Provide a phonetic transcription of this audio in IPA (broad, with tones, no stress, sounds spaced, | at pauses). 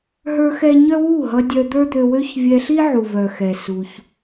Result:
ɦ ə˞˦ x ɛ˦ ɲ œ˦ w u˦˨ ɦ ʌ˧ dʲ œ˧ d̪ ə˞˦ d̪ ø˧ w ø˦ ç vʲ ɛ˧ ɬ i˦ ʕ u˨ v œ˨ x ɛ˨ s u˧ ç